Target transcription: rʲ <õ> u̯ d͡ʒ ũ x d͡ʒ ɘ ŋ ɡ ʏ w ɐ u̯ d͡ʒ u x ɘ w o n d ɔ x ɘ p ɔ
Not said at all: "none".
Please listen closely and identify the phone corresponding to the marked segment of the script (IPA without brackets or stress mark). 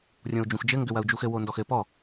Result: õ